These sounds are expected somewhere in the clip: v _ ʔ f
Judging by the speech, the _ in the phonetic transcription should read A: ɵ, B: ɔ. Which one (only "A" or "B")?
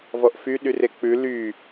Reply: B